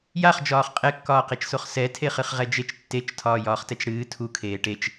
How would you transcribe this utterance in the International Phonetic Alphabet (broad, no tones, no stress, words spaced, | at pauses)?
jaχd͡ʒɒːχ qʼɛkːɒːqet͡ʃsoχ sɛtʰeχɨχ ʁɛd͡ʒet͡ʃ tːet͡ʃtʰɒː jɒːχtɛt͡ʃɽɨː tʰu kʰeːʈet͡ʃ